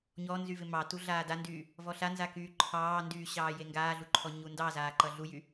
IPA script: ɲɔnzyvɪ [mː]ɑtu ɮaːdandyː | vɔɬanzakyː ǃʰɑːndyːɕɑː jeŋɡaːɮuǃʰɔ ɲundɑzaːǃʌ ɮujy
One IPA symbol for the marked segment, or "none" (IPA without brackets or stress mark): m